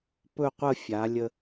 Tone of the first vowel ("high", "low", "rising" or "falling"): falling